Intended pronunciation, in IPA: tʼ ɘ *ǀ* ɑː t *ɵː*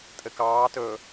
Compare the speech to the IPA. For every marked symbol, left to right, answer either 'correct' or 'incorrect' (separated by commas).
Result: incorrect, correct